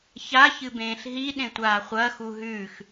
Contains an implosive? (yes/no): yes